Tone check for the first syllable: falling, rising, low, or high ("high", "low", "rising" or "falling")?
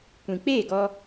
low